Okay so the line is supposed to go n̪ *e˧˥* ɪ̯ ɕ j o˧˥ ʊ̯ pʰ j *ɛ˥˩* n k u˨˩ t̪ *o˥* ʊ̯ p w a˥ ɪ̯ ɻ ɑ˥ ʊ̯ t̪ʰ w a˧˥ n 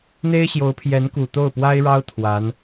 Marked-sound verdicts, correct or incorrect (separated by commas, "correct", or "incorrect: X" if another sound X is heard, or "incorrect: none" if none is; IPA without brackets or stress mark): incorrect: e˥, incorrect: ɛ˧˥, incorrect: o˥˩